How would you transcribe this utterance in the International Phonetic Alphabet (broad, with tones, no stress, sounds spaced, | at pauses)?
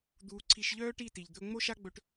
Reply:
d̪ uː˧ ǀʰ i˧ ʃ ʎ œː˦ ʈ i˦˨ t i˨ ʎ d̪ ɵ˧ ŋ͡m o˦ ʃ a˦ ɡ͡b ɵ˧ ʈ